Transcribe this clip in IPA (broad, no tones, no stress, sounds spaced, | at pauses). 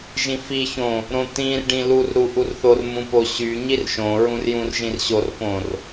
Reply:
ʒ ĩ f i ç õ | ɾ õ t̪ ĩ r ɖ ĩ l u r ɾ u ʔ u r θ o r m ũ p o ɕ y ɲ i r ʃ õ ɹ ũ r j ũ r ʒ ĩ r ɕ o r p õ r